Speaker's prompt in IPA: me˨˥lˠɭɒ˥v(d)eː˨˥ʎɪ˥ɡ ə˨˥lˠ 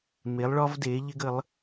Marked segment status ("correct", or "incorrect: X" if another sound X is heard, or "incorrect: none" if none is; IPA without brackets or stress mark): correct